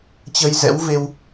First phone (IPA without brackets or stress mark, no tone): t͡ɕ